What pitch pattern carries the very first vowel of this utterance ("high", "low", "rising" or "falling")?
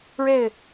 falling